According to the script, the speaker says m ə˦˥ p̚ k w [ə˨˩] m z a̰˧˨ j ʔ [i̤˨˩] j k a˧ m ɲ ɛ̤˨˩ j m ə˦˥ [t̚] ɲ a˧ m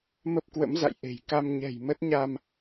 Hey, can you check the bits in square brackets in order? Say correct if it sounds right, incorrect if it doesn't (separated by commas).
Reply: incorrect, incorrect, correct